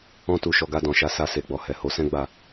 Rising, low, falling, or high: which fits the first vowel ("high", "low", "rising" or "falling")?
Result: high